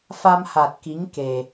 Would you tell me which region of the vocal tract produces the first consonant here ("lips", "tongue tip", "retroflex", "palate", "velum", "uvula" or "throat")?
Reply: lips